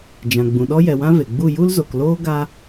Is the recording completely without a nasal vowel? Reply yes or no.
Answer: no